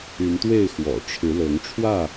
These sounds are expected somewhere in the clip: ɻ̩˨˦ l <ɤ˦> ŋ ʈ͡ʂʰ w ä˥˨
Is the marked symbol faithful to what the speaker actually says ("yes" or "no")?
no